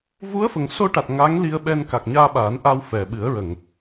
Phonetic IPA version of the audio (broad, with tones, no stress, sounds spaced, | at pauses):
v u˧˥ ə̯ f ə˨˩ ŋ s o˧ ʈ a˨˩ t̚ ŋ a˧˥ ŋ l i˧ ə̯ ɓ ɛ˧ n k a˨˩ k̚ ɲ aː˧ ɓ aː˨˩˦ n ʔ a˧ w f ɛ˨˩ ɓ ɨ˨˩˦ ə̯ ɹ ə˨˩˨ ŋ